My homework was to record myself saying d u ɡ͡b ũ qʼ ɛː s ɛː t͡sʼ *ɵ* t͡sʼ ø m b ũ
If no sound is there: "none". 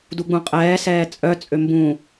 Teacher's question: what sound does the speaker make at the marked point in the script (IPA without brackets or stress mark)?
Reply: œ